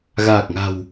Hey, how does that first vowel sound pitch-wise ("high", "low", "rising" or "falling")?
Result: low